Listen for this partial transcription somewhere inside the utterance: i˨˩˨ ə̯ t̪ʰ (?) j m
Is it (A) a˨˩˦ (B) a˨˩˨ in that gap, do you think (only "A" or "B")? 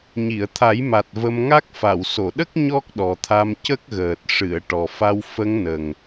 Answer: A